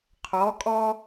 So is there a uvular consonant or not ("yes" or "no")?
yes